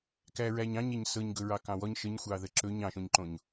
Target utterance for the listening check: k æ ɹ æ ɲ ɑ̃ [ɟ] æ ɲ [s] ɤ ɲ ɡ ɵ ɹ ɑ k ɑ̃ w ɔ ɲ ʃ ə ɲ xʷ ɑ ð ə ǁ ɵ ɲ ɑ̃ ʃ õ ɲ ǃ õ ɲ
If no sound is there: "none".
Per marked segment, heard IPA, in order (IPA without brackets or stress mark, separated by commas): ɲ, s